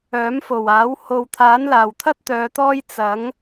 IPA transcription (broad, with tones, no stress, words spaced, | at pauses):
œː˨˥mfo˨˩waː˨˥w ho˨wt̪ʰaː˨˥nlaː˨˩wt̪ʰɐ˥t̚ t̪œː˨˧t̪ɔː˥j t͡sɐ˨˥ŋ